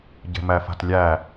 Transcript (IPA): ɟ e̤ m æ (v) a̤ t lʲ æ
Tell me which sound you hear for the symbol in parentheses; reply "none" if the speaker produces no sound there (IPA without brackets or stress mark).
f